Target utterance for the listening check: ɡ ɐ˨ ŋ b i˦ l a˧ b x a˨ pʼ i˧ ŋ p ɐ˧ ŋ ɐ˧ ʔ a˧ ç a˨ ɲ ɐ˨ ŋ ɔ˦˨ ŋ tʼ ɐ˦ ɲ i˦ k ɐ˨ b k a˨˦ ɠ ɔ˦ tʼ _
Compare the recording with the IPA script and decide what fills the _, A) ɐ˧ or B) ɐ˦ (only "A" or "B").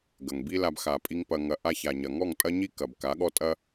B